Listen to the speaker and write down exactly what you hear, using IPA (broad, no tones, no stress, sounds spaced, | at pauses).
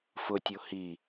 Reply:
f ʊ tʲ o h i